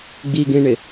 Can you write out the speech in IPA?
ɡ͡b i ɡ ẽ ɳ ɪ

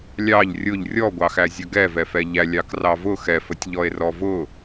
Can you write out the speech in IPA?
lʲ ɑ ʎ rʲ ʊ ʎ rʲ ɔ ɡʷ ɑ x æ zʲ ə ɡ ɛ v ɛ f ɛ ʎ æ lʲ ɑ k r ɑ v ʊ x ɛ f ə tʲ ʎ ɔ e̯ r ɔ v ʊ

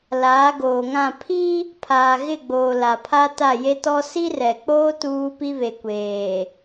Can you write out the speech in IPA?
l aː˨˦ ɡ oː˨ ŋ ã˦˨ pʰ i˦ | pʰ aː˨ ɣ ɪ˦˨ ɡ͡b oː˨ l a˨ pʰ a˦ t a˦˨ j e˦ t ɔ˦ s i˦ r ɛ˨ k͡p oː˦ t uː˦ p i˦ β e˨ kʷ eː˨

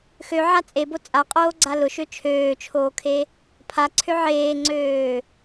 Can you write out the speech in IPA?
x ø ʕ a t͡sʼ e b o t͡sʼ a qʼ oː ɡ͡ǀ a l ʊ ʃ ø t͡ʃʰ øː t͡ʃʰ oː kʰ e | pʰ a ǀʰ ø ʕ eː ŋ͡ǀ øː

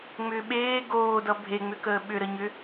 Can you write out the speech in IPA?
ŋ͡m ʏː ɓ eː ɡ oː d ʌ bʱ e ŋ͡m ʏ k əː ɓ ʏ ɾ ə ɲ ʏ

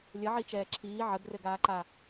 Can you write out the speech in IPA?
lʲ ə ʕ i t͡ʃ ɛː ǁʰ iː ʕ ə ɡ r ɘ ɡ aː ǃ a

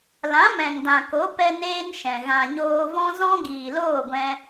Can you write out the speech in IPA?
l ã˨˦ m ɛ̃˨ ŋ d ã˨ k o˨˦ p ɛ˦ n eː˦ n ʃ ɛ̃˨ ɣ ã˨ ɲ oː˧ v ɔ̃˦ z ɔ̃˦ ɡ iː˨ l oː˦˨ ɡʷ ɛ̃˧

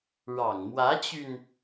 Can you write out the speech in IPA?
ɻ ɑ˨˩ ŋ m w ä˧˥ t͡ɕ y˧ n

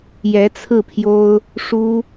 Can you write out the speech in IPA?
j ɛ˧˥ t͡sʰ ɹ̩˥˩ pʰ j o˥ ʊ̯ | ʂ u˥

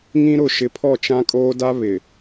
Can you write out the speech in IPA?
ŋ ĩ˦ ɾ ʊ˨ ʃ ɪ˨ pʰ ɔ˦˨ t͡ʃ ã˦ kʼ oː˦ d a˦ β ɪ˨

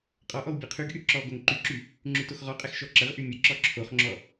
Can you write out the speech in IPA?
qʼ ɔ ʔ ɔ w bʲ ɛ qʰ y ɡ ʔ y ǁ ɔ ɡ o ŋ ǃ y ǁ y | ŋ͡ǁ y t o x ʁ ɔ qʼ ɛ x ʃ ɔ ǁ ə ʁ ʔ y mʲ ə ǁ ɔ ǁʰ o χ ŋ͡ǁ ɔ

